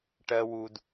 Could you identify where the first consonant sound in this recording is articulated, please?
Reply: retroflex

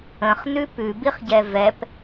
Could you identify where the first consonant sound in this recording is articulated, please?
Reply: uvular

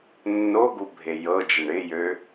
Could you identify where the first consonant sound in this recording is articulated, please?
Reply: alveolar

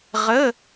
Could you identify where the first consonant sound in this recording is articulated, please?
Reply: uvular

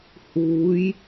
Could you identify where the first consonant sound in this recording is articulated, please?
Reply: glottal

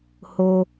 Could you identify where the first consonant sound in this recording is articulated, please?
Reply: glottal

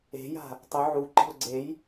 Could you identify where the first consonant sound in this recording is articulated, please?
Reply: palatal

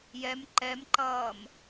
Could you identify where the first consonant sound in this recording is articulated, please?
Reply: palatal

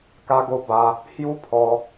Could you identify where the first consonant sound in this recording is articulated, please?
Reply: velar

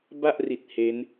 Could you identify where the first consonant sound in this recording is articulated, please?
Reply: labial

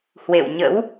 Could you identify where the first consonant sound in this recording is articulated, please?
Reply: glottal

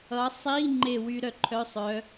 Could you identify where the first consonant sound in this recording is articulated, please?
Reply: alveolar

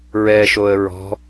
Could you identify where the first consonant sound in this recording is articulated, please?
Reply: alveolar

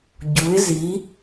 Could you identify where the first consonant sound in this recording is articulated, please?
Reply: palatal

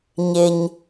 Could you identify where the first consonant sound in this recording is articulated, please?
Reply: palatal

